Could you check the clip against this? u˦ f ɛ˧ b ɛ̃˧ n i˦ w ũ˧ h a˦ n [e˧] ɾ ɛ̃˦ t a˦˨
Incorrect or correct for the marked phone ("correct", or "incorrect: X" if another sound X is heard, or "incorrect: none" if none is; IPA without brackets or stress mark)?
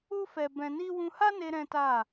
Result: correct